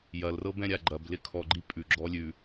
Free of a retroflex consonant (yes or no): yes